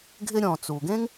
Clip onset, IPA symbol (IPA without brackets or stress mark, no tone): ɡʱ